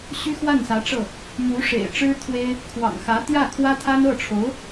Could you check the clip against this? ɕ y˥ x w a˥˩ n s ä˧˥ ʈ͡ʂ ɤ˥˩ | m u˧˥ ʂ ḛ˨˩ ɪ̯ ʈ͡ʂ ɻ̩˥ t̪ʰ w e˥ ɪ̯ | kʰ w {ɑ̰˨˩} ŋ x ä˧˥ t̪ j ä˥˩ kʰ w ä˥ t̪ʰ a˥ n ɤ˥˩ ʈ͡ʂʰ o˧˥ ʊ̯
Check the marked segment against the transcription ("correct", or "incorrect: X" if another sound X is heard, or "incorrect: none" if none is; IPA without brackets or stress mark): correct